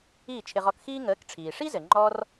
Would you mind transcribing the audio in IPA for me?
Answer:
iː˥˩ t͡ʃʰ ɪ˧ ʁ ɔ˧ k x iː˥ ŋ əː˩˥ k ʈ͡ʂʰ iː˩ ʂ i˥ z ɘ˩ ŋ͡ǃ ɔ˧ r

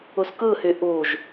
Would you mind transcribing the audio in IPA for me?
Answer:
u s k ɯ h y ʔ u ʒ

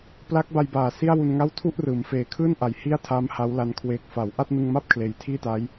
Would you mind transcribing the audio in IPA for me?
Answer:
p l a˦˥ k̚ b a˧ j b aː˨˩ s i˥˩ a̯ w u˧ n ŋ a˥˩ w tʰ u˥˩ ʔ r ɯː˩˦ m f eː˨˩ kʰ ɯː˥˩ n ʔ a˨˩ j h i˥˩ a̯ tʰ aː˦˥ m h a˦˥ w l a˦˥ n kʰ w eː˨˩ k̚ f a˩˦ w ʔ a˥˩ t̚ n ɯ˧ ŋ m a˥˩ p̚ kʰ l eː˩˦ j tʰ iː˥˩ t aː˦˥ j

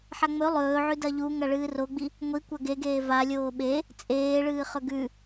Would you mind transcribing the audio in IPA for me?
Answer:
ħ a ŋ͡m ɵ lˠ ɵː ʕ ʉ d ɐ ʎ u ŋ ɐ ɭ ɨː r o ɡ͡b i | ŋʷ i kʷ ɐ ɡ e ɡ eː v a lʲ oː ɓ e | t͡sʼ eː ɭ ɨː χ ɵ ɡ ʉ

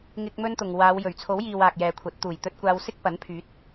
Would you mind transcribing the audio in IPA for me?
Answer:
ŋ ɪ˥ k̚ m ɵ˥ n t̪ ʊ˨ ŋ w aː˨˧ w j ɵ˨˩ ɥ t͡sʰ o˨˥ w j iː˨ w aː˨ k̚ j ɛː˨ kʷʰ ɐ˨˥ t̚ t̪ uː˨˩ j t̪ ɵ˧ t̚ kʷ aː˧ w s ɪ˥ k̚ p ɐ˨˥ n pʰ yː˨˥ t̚

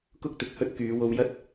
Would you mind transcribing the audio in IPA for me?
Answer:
k ʊ˥ k̚ t̪ ɪ˨ k̚ h ɵ˥ t̚ k yː˨˧ w o˧ w j ɐ˥ t̚

